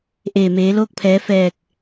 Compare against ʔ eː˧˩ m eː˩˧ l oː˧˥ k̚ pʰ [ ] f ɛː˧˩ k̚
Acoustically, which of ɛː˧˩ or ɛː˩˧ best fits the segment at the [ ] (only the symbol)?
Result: ɛː˩˧